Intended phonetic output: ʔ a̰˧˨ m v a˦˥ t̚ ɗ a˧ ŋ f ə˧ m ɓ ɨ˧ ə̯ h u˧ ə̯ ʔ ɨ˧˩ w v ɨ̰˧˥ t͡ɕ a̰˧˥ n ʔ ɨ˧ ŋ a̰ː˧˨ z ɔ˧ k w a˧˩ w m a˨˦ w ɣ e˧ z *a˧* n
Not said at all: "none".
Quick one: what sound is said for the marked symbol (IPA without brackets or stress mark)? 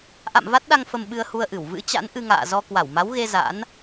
a̰˧˥